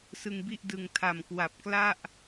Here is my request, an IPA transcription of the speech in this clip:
s ɯ˧ ŋ b i˥˩ ʔ d ɯ˨˩ ŋ tʰ a˨˩ m k w a˨˩ p̚ k l a˥˩ ʔ

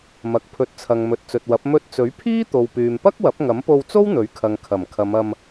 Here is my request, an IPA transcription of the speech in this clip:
m ɐ˨ k̚ pʰ ɵ˨˥ t̚ t͡sʰ ɐ˨ ŋ m ɵ˨ t̚ t͡s ɵ˨ t̚ w ɐ˨˥ p̚ m ɵ˧ t̚ t͡s ɵ˨˥ ɥ pʰ iː˥ t̪ o˨ w p yː˨ m p ɐ˥ k̚ w ɐ˨˥ p̚ ŋ ɐ˨˥ m p o˧ w t͡s o˥ w n̪ ɵ˨˥ ɥ kʰ ɐ˨ ŋ kʰ ɐ˨˩ m kʰ ɐ˨˧ m ɐ˧ m

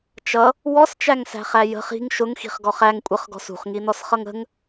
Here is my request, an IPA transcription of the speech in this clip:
t͡ʃ ʌ | w ɔ s t͡ʃ æ ŋ s æ̤ χ æ j ə̤ χ i̤ ŋ ʃ ʊ ŋ x i̤ χ ɡ ɔ χ æ ŋ kʷʼ ə χ ɡ ɔ̤ s ṳ χ ŋ i n ɔ s χ ʌ ŋ ə̤ ŋ

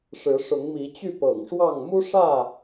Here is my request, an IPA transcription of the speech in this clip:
ʂ ɻ̩˨˦ ʂ ʊ˨˦ ŋ m i˨˦ t͡ɕ y˥˨ p ɤ̰˨˩ ŋ ʂ w ɑ˥˨ ŋ m u˦ ʂ ä˥˨

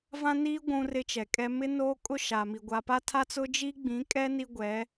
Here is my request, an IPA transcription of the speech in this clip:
v ã˦ n iː˦ ɡʷ ũ˦ r ɪ˦ t͡ʃ ɛ˨ kʼ ɛ˦ m ɪ˦ n oː˦ kʼ ʊ˦ ʃ aː˨ m i˨ ɡʷ a˨ p a˦ tʰ a˦ t͡s ʊ˦ d͡ʒ i˦ ɡ͡b ĩ˨˦ kʼ ɛ˦ n i˦ ɡʷ ɛ˨˦

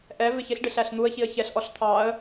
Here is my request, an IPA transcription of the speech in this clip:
ʔ ɛ v ɪ ç ɪ ɬ ɖ ɪ ɬ æ ɬ n̪ u ə̯ ç i ə̯ ç ɛ ɬ ʔ ɔ ɬ t̪ʰ ɑ ə̯

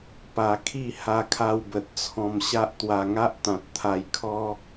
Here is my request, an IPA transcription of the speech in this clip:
p a˧ kʰ i˥˧ h a˧ kʰ a˧ w b ə˨ t̚ t͡sʰ ɔ̃˧ m ɕ a˦ ʔ t̪ w a˧ ŋ a˦ ʔ t̪ ã˨ t̚ t̪ʰ a˧ j kʰ ɔ˦

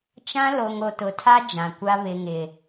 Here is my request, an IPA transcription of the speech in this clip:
t͡ʃ ã˦ l o˨ ŋ o˨ t ʊ˨˦ tʰ a˦ d͡ʒ ã˨ kʷ a˦ β ɪ˨ ŋ ɪ˨

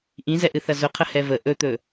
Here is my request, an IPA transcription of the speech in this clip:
ʔ ĩ z ɛ ʔ ɨ θ ɐ z ʊ qʰ ə h ɛ v ə ʔ ɵ t̪ ɵ

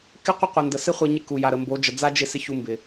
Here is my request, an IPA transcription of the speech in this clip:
k ɪ˦ qʷ ə˦ qʷ ə˨ n d ə˨ s ɪ˦ χʷ ɪ˧ ɲ ɪ˧ k u˨ j a˨ ɾ ə˨ m b o˨˦ d͡ʒ ə˨ d͡z a˦ d͡ʒ ɪ˦˨ s ɪ˦ ç u˧ m b ɪ˨

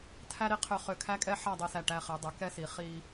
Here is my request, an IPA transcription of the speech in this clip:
tʰ æ˥ ɾ i˧ qʰ ø˧ χ ø˧˩ kʰ æ˥ kʼ ɛ˥ ħ a˥˧ dˤ i˧ s æ˧˩ ʈ æ˧ χ ɛ˩˧ dˤ ø˩˧ k ɛ˥ s i˩˧ χ i˧

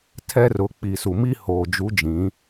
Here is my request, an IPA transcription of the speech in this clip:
tʰ ɛ˦ r ʊ˨˦ k͡p i˨ s u˨ m i˦ h oː˨ d͡ʒ u˨˦ d͡ʒ ĩ˨˦

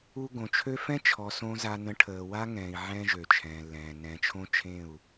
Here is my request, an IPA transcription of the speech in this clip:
u˧ ɡ õ˨ t͡ʃʰ ø˦ f ɛ̃˦ t͡ʃʰ ɔ˨ s õ˦ z a˧ n ə̃˧ ʈʰ əː˨ w a˦ ŋ ɛ̃ː˨ i̯ ʕ ɛ̃ː˦ ʒ ø˨ t͡ʃʰ ɛ̃ː˨ lː ɛ̃ː˨ n ɛ̃˨ t͡ʃʰ õ˦ t͡ʃʰ ẽ˦˨ u̯

